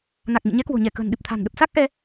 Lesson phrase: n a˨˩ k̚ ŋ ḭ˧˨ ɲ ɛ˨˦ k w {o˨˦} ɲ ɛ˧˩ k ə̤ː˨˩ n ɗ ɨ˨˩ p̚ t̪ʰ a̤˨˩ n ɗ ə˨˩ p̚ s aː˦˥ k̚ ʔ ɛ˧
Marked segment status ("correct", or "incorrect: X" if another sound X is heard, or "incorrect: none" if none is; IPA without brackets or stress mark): incorrect: o̤˨˩